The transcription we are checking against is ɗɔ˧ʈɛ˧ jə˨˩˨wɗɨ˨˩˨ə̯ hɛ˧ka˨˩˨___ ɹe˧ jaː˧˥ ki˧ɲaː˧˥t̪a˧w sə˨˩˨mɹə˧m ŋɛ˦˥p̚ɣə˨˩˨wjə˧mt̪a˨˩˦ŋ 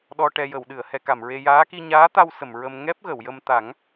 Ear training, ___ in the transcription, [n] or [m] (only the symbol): m